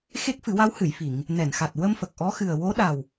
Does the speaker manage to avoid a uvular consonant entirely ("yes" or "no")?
yes